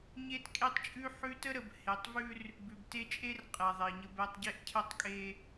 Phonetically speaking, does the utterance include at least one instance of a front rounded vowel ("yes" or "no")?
no